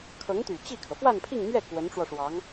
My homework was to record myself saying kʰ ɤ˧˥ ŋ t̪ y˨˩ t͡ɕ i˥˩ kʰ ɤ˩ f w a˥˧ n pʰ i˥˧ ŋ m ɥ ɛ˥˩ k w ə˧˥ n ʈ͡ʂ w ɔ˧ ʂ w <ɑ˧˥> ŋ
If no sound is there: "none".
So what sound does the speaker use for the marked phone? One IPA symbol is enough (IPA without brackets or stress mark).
ɑ˧˥